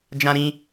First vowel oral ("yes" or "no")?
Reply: no